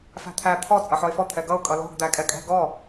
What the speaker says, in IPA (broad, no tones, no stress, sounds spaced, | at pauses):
f æ̤ t̪ʰ æ t̪ʰ ɔ t͡sʼ ʌ ħ ɔ ɪ̯ f ɔ t̪ʰ ɛ ɡ ʌ ʊ̯ kʼ ʌ l ɔ̤ ɡ d̪ æ kʼ ɛ kʼ ɛ̤ ɡ ɔ